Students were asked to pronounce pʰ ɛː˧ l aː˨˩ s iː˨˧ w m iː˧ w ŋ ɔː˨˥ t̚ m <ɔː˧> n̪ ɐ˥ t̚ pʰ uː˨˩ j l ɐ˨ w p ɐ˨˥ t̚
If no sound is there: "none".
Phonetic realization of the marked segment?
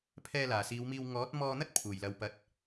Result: ɔː˧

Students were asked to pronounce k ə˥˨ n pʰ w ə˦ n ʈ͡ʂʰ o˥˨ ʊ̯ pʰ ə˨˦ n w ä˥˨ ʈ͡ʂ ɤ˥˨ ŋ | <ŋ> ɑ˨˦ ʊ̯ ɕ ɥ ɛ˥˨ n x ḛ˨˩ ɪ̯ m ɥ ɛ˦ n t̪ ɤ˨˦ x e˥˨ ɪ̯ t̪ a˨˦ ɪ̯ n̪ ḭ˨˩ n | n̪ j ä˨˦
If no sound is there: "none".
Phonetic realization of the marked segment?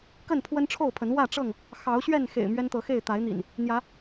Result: x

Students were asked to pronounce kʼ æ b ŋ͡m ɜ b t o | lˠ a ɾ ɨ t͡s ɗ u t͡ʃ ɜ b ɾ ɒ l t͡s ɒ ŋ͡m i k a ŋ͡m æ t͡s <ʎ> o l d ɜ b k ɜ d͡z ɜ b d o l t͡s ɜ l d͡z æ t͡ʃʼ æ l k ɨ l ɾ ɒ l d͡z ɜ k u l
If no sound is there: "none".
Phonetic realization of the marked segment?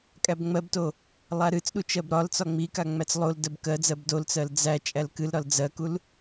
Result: lˠ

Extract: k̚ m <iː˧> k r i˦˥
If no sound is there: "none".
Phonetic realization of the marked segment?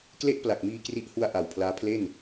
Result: iː˧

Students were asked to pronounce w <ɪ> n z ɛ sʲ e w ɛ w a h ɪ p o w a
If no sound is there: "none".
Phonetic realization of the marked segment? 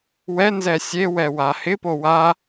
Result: ɛ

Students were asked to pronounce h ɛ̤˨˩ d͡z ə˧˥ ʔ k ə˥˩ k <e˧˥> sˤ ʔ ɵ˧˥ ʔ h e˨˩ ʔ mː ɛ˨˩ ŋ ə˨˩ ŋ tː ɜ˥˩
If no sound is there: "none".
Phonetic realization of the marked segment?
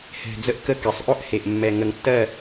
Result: e˩˧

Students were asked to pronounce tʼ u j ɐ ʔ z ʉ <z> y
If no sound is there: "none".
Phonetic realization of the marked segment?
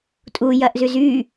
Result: z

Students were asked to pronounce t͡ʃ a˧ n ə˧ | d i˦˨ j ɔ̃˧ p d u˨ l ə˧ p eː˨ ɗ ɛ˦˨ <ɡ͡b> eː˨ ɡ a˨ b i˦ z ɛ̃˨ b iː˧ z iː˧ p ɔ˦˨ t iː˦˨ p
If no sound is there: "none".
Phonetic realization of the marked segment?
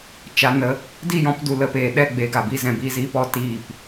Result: ɡ͡b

